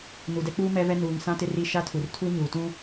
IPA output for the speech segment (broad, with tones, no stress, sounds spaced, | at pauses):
n u˨ d ɛ˦ k͡p uː˦ m ɛ˦ v ɛ˦ n uː˨ ŋ s ã˦ t ɪ˦ r i˦ ʃ a˦ tʰ u˨ r tʰ u˦ ɲ uː˨ t ũ˦